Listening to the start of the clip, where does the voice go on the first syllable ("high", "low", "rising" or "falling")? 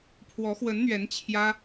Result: rising